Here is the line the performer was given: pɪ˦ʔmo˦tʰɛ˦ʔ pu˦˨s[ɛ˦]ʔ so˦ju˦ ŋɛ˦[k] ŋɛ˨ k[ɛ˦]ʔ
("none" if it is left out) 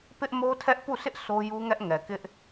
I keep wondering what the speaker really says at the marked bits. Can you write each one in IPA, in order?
ɪ˦, ʔ, ɪ˦

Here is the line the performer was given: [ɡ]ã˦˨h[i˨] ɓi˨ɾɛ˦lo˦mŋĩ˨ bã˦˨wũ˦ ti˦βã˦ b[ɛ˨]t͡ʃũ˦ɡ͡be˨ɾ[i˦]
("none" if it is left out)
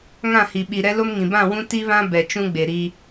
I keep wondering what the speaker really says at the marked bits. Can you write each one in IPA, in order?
ŋ, i˨, ɛ˨, i˦

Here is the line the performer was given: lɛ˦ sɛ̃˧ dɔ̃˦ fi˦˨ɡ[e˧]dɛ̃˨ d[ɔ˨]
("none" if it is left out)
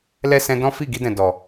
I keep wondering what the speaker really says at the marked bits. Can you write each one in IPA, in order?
i˧, ɔ˨

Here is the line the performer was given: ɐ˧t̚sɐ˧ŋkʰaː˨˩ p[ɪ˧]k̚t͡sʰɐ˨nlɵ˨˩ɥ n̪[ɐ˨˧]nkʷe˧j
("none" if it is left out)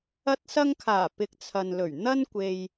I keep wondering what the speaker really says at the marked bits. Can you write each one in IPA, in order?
ɪ˨, ɐ˥

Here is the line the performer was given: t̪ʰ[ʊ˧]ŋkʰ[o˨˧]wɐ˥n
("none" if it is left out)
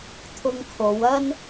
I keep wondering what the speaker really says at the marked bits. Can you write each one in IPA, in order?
ʊ˧, o˨˧

